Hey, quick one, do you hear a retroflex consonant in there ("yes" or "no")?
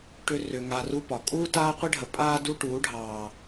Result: yes